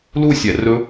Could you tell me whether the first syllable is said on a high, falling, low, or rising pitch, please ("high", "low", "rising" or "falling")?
falling